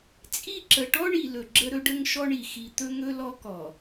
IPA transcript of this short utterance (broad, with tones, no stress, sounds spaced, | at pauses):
t͡sʼ i˦˨ ǁ ə˨ ʈ ɔ˦ ɳ i˨ l ɵ˨ ɡ͡ǁ ə˦ ɾ ɵ˦ ɖ ə˦ ŋ ʃ ɔ˦ ɳ i˨ x i˨ t̪ ɵ˦ ŋ ɵ˦ l ɔ˦ k ɔ˨